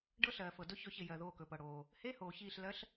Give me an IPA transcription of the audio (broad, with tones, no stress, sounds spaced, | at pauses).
ɖ ɤ˥ ɬ ɜː˩ f ɤ˩ d ɵ˥ ç ɵ˧˩ ç ɪ˧˩ j ɜ˩ ð oː˧˩ k ɵ˩ p ɤ˩ ɽ oː˩ | h e˧˥˧ h oː˩ ç iː˧˩ ɬ l ɜ˧˥ ɬ